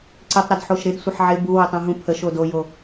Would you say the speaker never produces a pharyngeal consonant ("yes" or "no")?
no